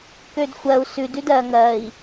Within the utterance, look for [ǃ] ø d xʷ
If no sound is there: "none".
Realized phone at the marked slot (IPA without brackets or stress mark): k